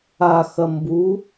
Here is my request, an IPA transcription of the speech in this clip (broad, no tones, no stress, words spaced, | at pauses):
axɐ mbu